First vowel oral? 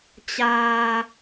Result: yes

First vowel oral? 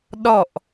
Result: yes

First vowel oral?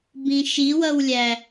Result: no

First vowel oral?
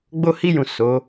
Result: yes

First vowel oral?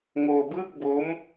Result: yes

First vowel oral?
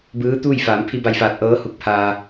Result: yes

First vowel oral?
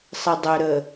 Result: yes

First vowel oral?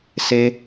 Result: yes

